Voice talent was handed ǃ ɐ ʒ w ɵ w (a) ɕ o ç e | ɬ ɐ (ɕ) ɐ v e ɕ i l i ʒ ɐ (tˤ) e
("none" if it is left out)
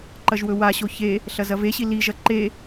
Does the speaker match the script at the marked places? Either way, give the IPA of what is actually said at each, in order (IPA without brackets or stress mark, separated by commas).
a, z, ǃ